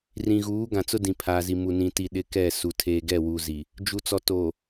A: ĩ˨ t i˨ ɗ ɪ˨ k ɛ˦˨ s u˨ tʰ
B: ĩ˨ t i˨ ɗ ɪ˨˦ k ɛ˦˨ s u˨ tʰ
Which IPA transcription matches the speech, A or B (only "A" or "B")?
B